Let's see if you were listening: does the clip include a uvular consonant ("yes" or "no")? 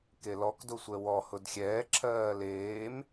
no